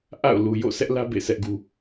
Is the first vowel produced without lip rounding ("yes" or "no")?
yes